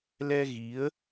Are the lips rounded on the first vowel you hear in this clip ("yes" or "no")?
no